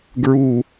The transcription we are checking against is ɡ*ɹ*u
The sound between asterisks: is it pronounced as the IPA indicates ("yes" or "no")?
yes